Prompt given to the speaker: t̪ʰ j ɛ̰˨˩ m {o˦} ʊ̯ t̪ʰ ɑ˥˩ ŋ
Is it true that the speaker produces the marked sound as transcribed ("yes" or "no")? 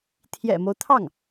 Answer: yes